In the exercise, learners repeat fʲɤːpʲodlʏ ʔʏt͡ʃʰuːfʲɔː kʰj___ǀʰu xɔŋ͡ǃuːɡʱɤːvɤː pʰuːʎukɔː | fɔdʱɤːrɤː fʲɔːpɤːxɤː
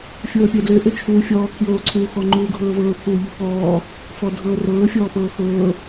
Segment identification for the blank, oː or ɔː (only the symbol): oː